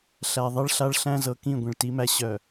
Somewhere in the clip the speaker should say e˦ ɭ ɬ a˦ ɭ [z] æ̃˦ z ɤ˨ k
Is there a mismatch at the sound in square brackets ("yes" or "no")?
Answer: yes